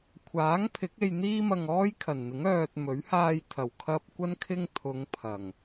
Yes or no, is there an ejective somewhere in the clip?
no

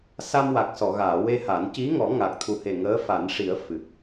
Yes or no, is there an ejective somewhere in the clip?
no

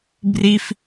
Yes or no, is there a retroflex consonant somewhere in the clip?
no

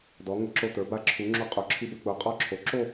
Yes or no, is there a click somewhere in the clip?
yes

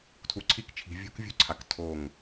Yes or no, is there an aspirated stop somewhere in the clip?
yes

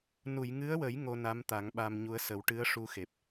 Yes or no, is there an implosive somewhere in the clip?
yes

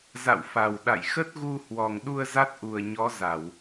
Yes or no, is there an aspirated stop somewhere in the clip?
no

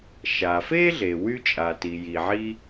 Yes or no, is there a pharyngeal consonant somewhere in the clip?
yes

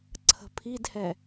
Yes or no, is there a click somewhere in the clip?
yes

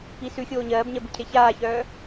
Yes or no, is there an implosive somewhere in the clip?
no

